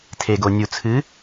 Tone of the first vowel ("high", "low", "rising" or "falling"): low